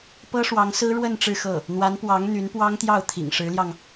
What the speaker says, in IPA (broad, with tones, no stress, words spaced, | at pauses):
pɤ˥ʂwɑ˧˥ŋsɹ̩˥ ɻwə˥˧n ʈ͡ʂɻ̩˥˧xɤ˥˩ | n̪wa˧˥npwɑ˧˥ŋ n̪y˧˥npwɑ˥ŋt̪jɑ˥˩ʊ̯ t̪ʰḭ˨˩ŋʂɻ̩˧˥ljɑ˧ŋ